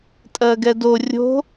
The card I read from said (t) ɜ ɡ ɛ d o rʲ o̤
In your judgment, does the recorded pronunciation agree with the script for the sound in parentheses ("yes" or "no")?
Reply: no